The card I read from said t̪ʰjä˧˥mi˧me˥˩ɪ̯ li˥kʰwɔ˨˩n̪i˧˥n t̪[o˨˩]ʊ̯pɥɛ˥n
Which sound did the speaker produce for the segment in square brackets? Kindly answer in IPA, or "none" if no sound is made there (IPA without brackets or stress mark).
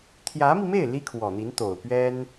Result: o˨˩